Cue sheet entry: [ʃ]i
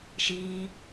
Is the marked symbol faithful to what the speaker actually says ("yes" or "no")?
yes